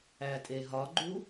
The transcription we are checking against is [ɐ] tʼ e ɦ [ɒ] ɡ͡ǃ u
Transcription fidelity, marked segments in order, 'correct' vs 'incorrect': incorrect: æ, correct

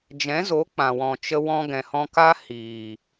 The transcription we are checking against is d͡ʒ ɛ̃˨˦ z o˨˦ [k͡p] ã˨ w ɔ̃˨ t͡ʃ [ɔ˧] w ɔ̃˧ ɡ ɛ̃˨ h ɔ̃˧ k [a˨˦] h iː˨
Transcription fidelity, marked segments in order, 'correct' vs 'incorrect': correct, incorrect: ə˧, incorrect: a˦

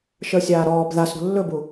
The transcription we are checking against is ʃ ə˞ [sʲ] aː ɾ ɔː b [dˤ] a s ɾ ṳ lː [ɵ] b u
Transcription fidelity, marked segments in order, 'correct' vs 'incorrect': correct, incorrect: ð, correct

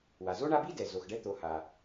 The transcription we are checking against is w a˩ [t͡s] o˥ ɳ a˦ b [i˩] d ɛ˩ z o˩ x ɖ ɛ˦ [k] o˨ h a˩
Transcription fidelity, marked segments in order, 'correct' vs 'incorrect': incorrect: z, incorrect: i˥, incorrect: t̪

